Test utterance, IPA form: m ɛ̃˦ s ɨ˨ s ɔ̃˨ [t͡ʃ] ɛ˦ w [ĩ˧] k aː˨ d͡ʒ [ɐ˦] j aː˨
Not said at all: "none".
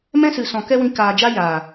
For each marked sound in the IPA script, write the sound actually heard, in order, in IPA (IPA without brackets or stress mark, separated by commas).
k, ĩ˧, a˦